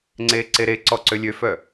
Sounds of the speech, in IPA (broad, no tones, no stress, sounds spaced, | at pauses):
ŋ͡ǀ eː ǀ e ɾ e ǀ ɔ ǀ ø lʲ ø f œ